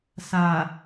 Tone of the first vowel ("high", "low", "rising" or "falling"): low